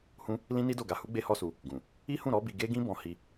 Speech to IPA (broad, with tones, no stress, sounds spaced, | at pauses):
h ũ˦ | l ĩ˦ n i˦ d o˦˨ ɡ a˧ h u˦ ɡ͡b e˦ h ɔ˦ s u˧ | ɡ ũ˨ | i˦ h ũ˦˨ ɾ ɔ˨˦ b i˧ ɡ e˦ ɡ ĩ˦ b ɔ̃˧ h i˧